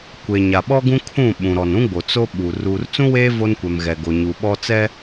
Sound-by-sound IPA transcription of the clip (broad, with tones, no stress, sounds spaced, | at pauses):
kʷ e˨ ɲ a˨ ɓ ɔ˦ ɡ ũ˦ kʰ ũ˦˨ ɓ ũ˨ ɾ ɔ˨ n ũ˦ ɡ͡b o˨ t͡s o˦ ɓ u˨ r uː˨ r t͡s ũ˦ w eː˦ v o˦ n kʷ ɛ˨ m ɣ ɛ˨ ɡ o˨ ɲ u˨ ɓ ɔ˦ t͡s ɛ˦